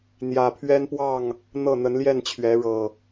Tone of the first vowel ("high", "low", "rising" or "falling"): low